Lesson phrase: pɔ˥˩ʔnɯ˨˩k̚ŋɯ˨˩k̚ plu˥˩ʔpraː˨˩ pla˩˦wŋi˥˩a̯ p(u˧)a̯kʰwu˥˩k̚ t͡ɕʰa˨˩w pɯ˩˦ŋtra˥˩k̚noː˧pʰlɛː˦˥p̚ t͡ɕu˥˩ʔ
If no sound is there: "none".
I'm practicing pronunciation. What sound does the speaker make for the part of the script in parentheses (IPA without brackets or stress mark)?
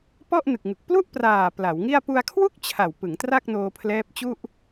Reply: u˧